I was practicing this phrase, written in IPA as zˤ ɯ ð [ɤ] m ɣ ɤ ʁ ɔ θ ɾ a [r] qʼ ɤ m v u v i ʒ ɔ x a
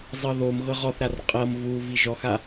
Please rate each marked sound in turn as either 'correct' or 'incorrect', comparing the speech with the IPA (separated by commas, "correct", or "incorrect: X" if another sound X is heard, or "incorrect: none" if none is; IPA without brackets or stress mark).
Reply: incorrect: o, correct